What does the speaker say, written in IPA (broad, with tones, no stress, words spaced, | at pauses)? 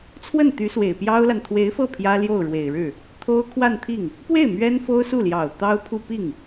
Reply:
t͡sʰwə˥˩nt̪y˧˥swe˨˩ɪ̯ pjɑ˥ʊ̯la˨n t̪ʰwe˧˥ɪ̯fɤ˥˩ pʰjä˥ljo˥˩ʊ̯ɻwe˨˩ɪ̯ɻɻ̩˥˩ | t̪ʰo˥ʊ̯ kʰwa˥˧nt̪ʰi˥˩ŋ | pwe˥˩ɪ̯ mɥɛ˥nfo˥ʊ̯su˥˩ljɑ˨˩ʊ̯ t̪ɑ˥ʊ̯pʰu˥˧ pi˥˩ŋ